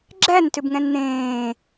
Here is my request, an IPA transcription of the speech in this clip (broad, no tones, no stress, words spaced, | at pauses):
ɡ͡ǁæntʏbŋɛ̃n n̪ẽː